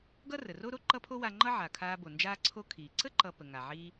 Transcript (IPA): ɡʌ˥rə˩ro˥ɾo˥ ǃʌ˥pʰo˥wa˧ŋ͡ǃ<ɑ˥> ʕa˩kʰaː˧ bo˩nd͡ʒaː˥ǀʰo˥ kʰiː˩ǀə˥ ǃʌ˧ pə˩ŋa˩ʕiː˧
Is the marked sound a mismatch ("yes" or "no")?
yes